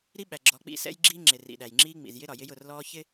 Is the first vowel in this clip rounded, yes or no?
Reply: no